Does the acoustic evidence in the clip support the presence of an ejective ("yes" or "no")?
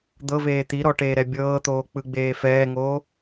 no